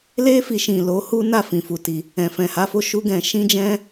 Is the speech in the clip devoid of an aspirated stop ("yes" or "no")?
yes